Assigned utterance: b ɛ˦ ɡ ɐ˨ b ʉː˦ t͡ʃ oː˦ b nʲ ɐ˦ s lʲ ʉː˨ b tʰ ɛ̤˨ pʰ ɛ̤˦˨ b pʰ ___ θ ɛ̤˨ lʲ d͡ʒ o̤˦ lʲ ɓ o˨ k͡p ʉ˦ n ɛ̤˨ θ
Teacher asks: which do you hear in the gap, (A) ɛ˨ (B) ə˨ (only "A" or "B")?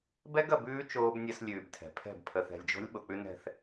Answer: B